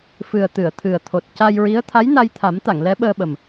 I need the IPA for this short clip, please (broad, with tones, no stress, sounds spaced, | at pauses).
f ɨ˨˩ ə̯ t̪ ɨ˨˩˨ ə̯ t̪ʰ ɨ˨˩ ə̯ t̪ʰ o˨˩ t̚ c a˧ j ɹ i˧˥ ə̯ t̪ʰ a˧˥ j n a˧ j t̪ʰ a˨˩˦ m t̪ a˨˩˨ ŋ l ɛ˧˥ ɓ əː˧ ɓ ə˨˩ m